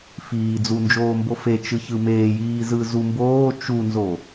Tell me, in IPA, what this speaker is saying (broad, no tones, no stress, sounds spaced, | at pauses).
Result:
f iː d͡z u n d͡ʒ oː m b o f e t͡ʃ ɯ ç ɯ m eː j iː z ɯ z u m b oː t͡ʃ u n z o